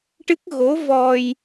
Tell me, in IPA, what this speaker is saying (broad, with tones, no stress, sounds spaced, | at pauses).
ʈ ɨ˦˥ k̚ ɣ o˧˥ v ɔ˧ j